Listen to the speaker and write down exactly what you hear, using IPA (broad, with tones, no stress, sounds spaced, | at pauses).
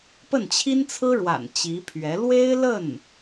p ə˥˩ n t͡ɕʰ i˥ n t͡sʰ ɹ̩˥ ɻ w a̰˨˩ n t͡ɕ i˧˥ pʰ ɥ ɛ˧˥ l w e˥ ɪ̯ l ə˥˩ n